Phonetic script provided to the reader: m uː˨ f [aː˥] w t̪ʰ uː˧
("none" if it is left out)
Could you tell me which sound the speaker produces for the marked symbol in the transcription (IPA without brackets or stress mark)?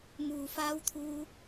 aː˧